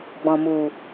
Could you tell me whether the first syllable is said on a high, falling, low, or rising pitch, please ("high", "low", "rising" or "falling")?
low